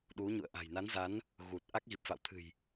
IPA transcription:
ɗu˨˦ɲṵ˧˨ə̯ ʔa̤˨˩jna˨˦nza˨˦n | ɣu˨˩t̚ ʔa˦˥k̚ɣi˨˩p̚fa̰˧˨wt̪ʰɨ̤˨˩j

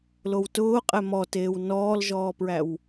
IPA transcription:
lowtʊː qʼɛmɔteːw nɔːlʒɔːpɹæw

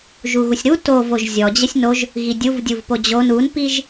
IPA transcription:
ʒuɣusʲɾu tovoʒ zʲɔd͡ʑəsʲ noʒ | ɣidʲuv dʲuvpod͡ʑon unpiʒ

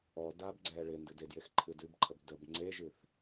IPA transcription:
ɔ dabɡ͡ǀɛ ɭɪ ndɨdedjex ǃʰɨdɨbǃʰəb dəb ŋ͡ǀeʒɨθ

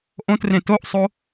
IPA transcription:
ʔõtrẽ toʔsˤo

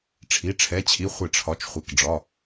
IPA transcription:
ʈ͡ʂʰi˩˧˩ʈ͡ʂʰɛ˩˧˩t͡ɕʰi˩˧˩ χʷɪ˧˩˧ʈ͡ʂʰɒ˩˧˩t͡ʃ χʷɪ˩˧˩k ɖ͡ʐɒ˩˧˩

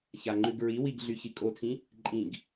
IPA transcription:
çaŋ͡ǃʉɡɹiwiɡ ɮyçikʼotʰĩ | ǃʼĩɡ

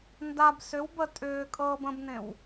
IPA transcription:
ndab sʏw bə tʼʏːkʼɤːb ə̃bnẽw

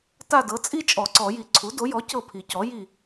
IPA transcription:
ta˦˨dɤ˩˥t͡sʼi˥ t͡ʃʼɔ˨˩˦ǀɔ˨˩˦ji˨˩ ǀʰu˩˥do˩˥jɔ˩˥ cɤ˦˨pʰi˨˩˦cɔ˩˥ ji˦˨

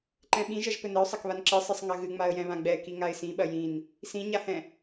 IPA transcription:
ǃɛ̃ɓĩʒɐʒ pɘnɘʊ̯sˤɐkβan ǁɨsˤɨsˤ ŋɐɣɨ ŋ͡maə̯jɛ̃βãɡ͡bɛ kiŋaɪ̯sĩɓɐ jĩn | sĩɲahɛ̃

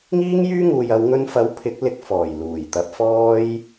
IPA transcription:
ŋiː˥ŋjyː˥ŋuː˨jɐ˨˧w ŋɵ˧nfɐ˨˥w pʰɪ˨˥k̚lɪ˧k̚ fɔː˨˩jluː˨˩j t̪ɐ˨˥p̚fɔː˥j

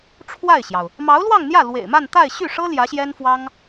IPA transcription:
ʈ͡ʂʰwa˥˩ɪ̯ɕjɑ˩ʊ̯ | mɑ˧˥ʊ̯lwɑ˥˧ŋn̪jä˥˩ lwḛ˨˩ɪ̯ma˥˧n t̪a˥˧ɪ̯ɕy˥˩ʂɤ˥ ljä˧˥ɕjɛ˥nfwɑ˥ŋ

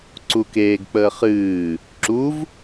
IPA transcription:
ǀukeːɡk͡pəː χɨː | ǁuv

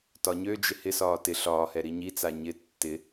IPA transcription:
tɒɲød͡ʒɪ hɪsɒː tɪ ɬɒːhɛ ɾiɲit͡sa ɲɪ tːɪ

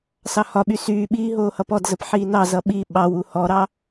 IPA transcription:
sɑhɒɓy syːɓiː ɦoːhʌpɔdzəp ħiːnɑzʌ ɓi ɓɑwu hɔɾɑ

